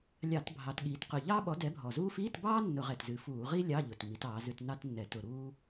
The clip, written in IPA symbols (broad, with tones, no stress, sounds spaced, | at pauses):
lʲ ɑ˧˩˧ t bʱ ɑ˩˧ t ɠ iː˩˧ t q ʊ˨˩ ʎ ɑː˥ ɓ ɔ˨˥ d ɛ˨˥ bʱ ɔ˨˩ z uː˥ f iː˧˥˧ t b ɑː˥ nː ʊ˧˩˧ ʁ ɛ˨˩ t z ɨ˩˧ f uː˧˩˧ ʁ i˥ lʲ ɑ˧˥˧ ʎ ʊ˨˩ t m i˩˧ t ɑː˩˧ z ɨ˧˥˧ t n ɑ˥ t nː ɛ˧˩˧ t ʊ˩˧ ɾ uː˥